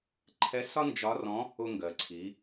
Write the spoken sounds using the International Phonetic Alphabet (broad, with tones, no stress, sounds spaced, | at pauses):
ǃʰ ɛ˧˥ s ɒ˥ n d͡ʒ ɒ˧˥ r ɔ̃˧˥ | ʊ˧ ŋ ɡ ɜ˩ ǀʰ i˩˧